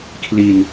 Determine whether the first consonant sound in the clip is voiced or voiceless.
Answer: voiceless